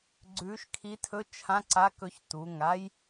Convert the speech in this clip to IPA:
ɡ͡ǀ ʉː˧˥ ʃ kʰ i˧˥ tʰ ɵ˧˥˧ t͡ʃʰ ã˧˥˧ ǀ a˧˥˧ k ɵ˧˥ ç t u˩˧˩ ŋ a˥ j

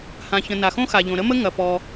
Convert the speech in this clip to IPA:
h ã˩ ç ə̃˩ n a˩ x õ˥ x a˩ ʎ õ˩ ɾ ə˥ m ə˥ ŋ ɐ˩ p ɔ˩

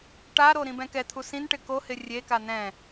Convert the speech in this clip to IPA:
ʈ a ɾ o ɾ ĩ b ɛ̃ k ɛ t̪ʰ u s ĩ n ʈ ɪ k o h ɪ rʲ e k a n ɛ̃

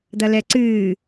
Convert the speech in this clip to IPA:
d̪ ɐ l ɛ ǀ ɨː

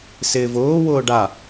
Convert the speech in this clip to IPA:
s ɪː v ʊː w ʊː ɖ a

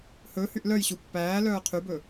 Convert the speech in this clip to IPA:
h ɵ h y ʔ l œ j ɕ u pː æː l œː qʰ y b ɵ

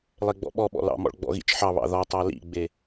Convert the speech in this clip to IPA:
lˠ e ɡ͡b ɔ̰ ɓ ɔ ɓ ɔ̰ l ɑ̰ m ɔ̰ ɭ ɡ͡b ɔ̰ ɣ ḭ t͡ʃ ħ ɑ β ɑ̰ ð ɔ tˤ ɑ l ḭ ɡ͡b e

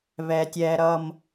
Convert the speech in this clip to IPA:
β ɛ˨ tʲ ɛ˨ ɾ ʌ˨ m

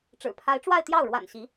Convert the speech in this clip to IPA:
ʈ͡ʂ ɻ̩˨˩ pʰ a˧˥ ɪ̯ ʈ͡ʂ w a˥˧ ɪ̯ t̪ j ɑ˥˩ ʊ̯ ɻ w a̰˨˩ n ɕ i˧˥

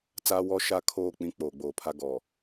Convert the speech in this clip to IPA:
t͡s aː˦ w ɔ˦ ʃ a˦ kʰ oː˦˨ k͡p ĩ˦ k͡p oː˨ ɡ͡b oː˨ pʰ a˦ ɡ ɔ˨

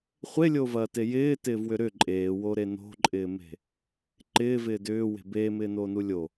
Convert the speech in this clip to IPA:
χʷ e lʲ o v ɐː t e j ɪː t ɪː v w ʏ ɾ ʏ ǃʼ eː w o ɾ e n o̤ ǃʼ ɪː m e̤ | ǃ ɪː v ɪː d ʏː w e̤ b eː m ɪː n oː n u lʲ o

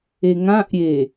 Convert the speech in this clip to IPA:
e ŋ ã ʔ ɾʲ e

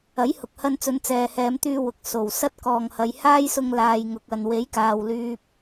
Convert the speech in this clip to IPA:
ɐ˨˥ j h ʊ˨ k̚ h ɐ˧ n t͡s ɵ˨˧ n t͡s ɛː˨ h ɛː˨˧ m t̪ yː˧ w ʊ˨ k̚ s o˨ w s ɐ˥ t̚ k ɔː˨ ŋ h ɐ˨˧ j h aː˥ j s ʊ˧ ŋ l aː˨ j ŋ ʊ˨ k̚ ɐ˨ n w e˨˥ j k aː˨ w l yː˥ p̚

